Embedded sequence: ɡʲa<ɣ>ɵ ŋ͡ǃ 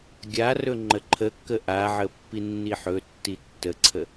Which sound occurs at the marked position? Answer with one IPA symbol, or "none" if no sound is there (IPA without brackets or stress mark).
r